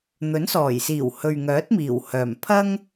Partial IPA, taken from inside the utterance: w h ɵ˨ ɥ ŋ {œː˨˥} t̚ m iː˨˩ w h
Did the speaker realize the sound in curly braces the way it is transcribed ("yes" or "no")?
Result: yes